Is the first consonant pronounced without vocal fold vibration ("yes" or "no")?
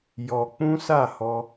no